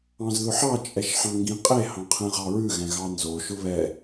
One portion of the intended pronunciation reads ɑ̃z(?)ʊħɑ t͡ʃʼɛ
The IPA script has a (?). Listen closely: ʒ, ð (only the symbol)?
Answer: ð